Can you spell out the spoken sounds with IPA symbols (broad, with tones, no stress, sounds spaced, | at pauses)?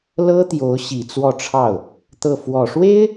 l ɤ˥ t̪ j o˧˥ ʊ̯ ɕ i˨˩ t͡s w ɔ˥˧ ʈ͡ʂʰ ɑ˥˩ ʊ̯ | t̪ ɤ˥˩ f w ɔ˨˩ ʂ w e˥ ɪ̯